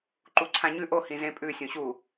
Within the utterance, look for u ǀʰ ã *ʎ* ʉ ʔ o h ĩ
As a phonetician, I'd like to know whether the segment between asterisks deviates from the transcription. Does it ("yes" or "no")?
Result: yes